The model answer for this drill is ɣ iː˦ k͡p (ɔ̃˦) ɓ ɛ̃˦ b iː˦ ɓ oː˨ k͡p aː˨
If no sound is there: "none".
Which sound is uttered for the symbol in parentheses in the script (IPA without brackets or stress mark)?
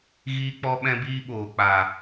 ɔ˦